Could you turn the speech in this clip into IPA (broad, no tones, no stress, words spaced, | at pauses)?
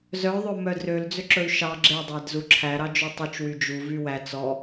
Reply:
zœ ðˤɵmœdrøl d͡zøǁɵy̯ʃɑ ɡ͡ǁe dˤædzuǁʰæ ɾɑd͡ʒutˤyt͡ʃ wyd͡ʒu vywæ t͡sɔ